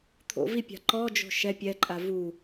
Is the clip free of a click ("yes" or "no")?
no